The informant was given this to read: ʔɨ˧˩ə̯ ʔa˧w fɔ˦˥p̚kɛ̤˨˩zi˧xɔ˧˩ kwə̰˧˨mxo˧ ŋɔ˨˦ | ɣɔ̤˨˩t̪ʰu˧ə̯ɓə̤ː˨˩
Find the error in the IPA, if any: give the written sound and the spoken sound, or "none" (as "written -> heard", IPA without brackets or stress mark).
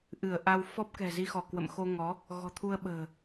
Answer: none